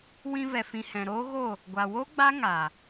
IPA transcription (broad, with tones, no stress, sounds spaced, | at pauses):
w ĩ˧ v ɛ˨ f ĩ˨ h ɛ̃˨ ɾ oː˦ ɣ o˦˨ | ɡʷ a˨ w o˦ ɡ͡b a˦ ŋ a˨